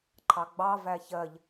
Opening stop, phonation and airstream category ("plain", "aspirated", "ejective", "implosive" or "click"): click